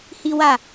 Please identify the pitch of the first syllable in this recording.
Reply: high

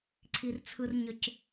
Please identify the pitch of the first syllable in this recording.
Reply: low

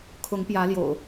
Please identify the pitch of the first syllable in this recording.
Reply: rising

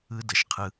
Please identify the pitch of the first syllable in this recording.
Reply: high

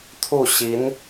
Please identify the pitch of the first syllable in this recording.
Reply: falling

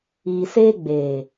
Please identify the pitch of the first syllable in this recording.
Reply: low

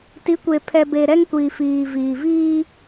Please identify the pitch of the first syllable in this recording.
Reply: rising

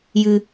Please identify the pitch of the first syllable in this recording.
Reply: low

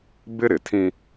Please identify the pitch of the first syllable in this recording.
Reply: high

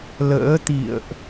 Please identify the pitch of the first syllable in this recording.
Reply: rising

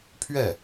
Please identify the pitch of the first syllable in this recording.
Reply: falling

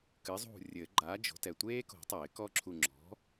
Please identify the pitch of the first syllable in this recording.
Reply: rising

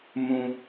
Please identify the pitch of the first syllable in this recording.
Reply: low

